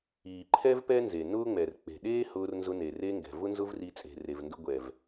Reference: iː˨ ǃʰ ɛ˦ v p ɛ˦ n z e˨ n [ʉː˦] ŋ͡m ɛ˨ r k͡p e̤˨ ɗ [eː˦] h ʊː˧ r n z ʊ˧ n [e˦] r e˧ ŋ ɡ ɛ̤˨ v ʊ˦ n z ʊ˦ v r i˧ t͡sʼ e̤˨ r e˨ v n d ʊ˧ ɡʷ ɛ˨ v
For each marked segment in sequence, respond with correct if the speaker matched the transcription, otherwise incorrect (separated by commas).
incorrect, correct, incorrect